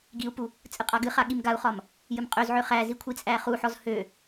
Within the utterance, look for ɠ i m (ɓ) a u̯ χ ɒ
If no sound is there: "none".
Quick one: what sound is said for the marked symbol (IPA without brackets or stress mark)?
ɡ